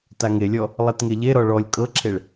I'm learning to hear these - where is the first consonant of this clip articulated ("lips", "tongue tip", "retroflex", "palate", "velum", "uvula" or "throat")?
tongue tip